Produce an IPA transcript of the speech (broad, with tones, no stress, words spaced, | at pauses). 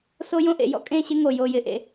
so˦jõ˦ʔḛ˨ jɔ̰˦kʼẽ˦˨ɕɪ˦ ŋo˨jo˨jɪ˨ʔḛ˨